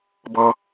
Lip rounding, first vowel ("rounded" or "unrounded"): rounded